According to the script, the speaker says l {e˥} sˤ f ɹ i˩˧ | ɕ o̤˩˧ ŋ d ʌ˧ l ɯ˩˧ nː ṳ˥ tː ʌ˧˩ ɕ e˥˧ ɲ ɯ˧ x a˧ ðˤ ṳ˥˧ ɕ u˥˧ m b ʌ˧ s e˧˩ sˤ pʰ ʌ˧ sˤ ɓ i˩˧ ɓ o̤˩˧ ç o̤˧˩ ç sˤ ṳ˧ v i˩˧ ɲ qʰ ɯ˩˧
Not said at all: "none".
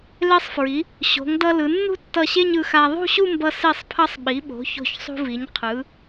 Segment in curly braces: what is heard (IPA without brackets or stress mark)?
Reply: e˧